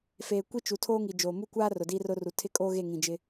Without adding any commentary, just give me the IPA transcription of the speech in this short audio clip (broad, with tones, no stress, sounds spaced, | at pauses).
f eː˨ kʷ i˦ t͡ʃ u˨ tʰ oː˦ ŋ i˨ d͡ʒ oː˨ m u˦ kʷ aː˦ r ʊ˨ d iː˦ r ʊ˦ r u˨ tʰ ɪ˦ kʼ oː˦ ɣ e˦˨ ŋ ĩ˨ d͡ʒ ɪ˦